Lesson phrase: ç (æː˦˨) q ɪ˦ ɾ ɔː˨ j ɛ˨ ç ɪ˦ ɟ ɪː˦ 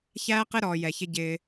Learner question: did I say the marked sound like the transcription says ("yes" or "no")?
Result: no